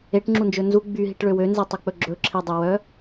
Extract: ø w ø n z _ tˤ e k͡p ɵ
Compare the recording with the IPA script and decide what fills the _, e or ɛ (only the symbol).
e